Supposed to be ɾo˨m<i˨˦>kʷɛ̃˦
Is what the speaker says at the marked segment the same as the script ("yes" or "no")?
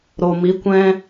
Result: yes